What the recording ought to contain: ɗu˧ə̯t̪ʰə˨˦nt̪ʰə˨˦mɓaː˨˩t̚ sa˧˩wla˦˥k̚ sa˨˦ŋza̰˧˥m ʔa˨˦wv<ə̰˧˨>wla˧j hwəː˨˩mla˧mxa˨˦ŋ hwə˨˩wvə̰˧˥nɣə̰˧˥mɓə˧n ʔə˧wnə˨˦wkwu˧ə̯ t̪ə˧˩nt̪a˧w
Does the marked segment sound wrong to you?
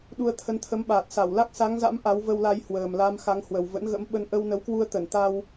yes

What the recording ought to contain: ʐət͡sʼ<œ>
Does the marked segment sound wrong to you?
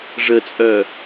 no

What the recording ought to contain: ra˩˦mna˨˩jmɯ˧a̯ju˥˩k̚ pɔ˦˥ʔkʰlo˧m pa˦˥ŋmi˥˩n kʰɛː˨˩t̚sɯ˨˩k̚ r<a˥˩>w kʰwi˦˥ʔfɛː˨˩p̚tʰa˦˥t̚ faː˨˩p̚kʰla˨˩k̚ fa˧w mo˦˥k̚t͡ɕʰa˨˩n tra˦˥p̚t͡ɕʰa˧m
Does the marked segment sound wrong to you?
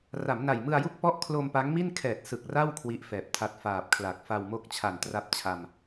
no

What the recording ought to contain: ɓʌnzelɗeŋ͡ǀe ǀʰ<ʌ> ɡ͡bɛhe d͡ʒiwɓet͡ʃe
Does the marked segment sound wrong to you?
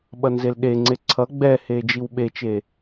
no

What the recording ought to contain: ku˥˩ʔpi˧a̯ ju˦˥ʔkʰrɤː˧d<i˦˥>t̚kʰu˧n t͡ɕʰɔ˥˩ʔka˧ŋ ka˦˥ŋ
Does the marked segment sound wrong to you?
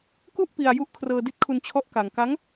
no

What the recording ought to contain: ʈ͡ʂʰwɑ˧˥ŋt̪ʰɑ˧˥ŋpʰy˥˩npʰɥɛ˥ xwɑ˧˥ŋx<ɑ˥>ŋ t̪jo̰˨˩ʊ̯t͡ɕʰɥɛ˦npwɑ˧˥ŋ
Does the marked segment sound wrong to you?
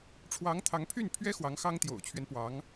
no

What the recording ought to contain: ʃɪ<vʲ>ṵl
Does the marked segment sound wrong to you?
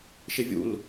no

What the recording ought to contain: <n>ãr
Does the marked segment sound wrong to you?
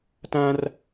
yes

